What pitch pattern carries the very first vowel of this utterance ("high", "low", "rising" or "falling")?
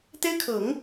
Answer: high